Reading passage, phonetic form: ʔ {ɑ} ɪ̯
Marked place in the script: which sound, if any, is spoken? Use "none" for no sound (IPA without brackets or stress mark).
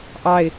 ɑ